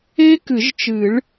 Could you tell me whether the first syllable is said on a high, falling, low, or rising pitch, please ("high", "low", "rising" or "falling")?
high